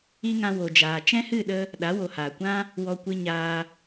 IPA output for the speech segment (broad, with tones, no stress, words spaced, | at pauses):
i˧ ŋã˧wo˨d͡ʒaː˨ t͡ʃɛ̃˦hɨ˦˨ɗə˧ | ɗa˨˦wo˨haː˨kʷã˦ | wɔ˧kʷɨ˧ ɲaː˧